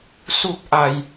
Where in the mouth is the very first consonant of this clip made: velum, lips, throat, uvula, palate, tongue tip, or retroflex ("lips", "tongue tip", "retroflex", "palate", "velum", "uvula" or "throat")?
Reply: tongue tip